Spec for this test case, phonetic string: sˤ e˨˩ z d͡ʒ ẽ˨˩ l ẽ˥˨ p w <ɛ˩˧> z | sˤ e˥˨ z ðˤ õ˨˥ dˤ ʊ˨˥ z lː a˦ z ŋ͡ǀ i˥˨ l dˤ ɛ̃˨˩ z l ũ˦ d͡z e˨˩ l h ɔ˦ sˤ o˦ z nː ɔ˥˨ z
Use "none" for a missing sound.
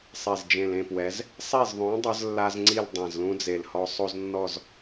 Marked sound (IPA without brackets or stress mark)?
ɛ˩˧